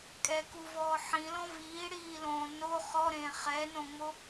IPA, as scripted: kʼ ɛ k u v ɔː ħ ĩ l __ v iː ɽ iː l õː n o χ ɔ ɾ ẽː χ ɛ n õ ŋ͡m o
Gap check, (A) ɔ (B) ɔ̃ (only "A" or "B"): B